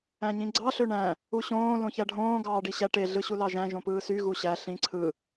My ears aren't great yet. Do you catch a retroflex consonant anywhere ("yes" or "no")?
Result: yes